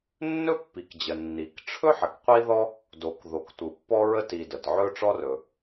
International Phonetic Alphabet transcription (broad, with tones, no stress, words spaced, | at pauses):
nːɵ˥pːi˩kd͡ʑə˩ nːi˩kʈ͡ʂʰɵ˥ ħə˩kqʷi˥ðɔ˥ | do˩k ðo˩k tʷɯ˩pːɔ˥ɹə˥ ti˩ də˩tʕɵ˥ʈ͡ʂɔ˥rɵ˩